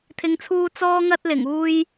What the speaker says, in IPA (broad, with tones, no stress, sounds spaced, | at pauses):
t̪ʰ ɪ˨˧ ŋ t͡sʰ uː˧ t͡s ɔː˥ ŋ ɐ˥ t̚ l ɪ˨˩ ŋ uː˧ j